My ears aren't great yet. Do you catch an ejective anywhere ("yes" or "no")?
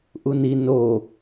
no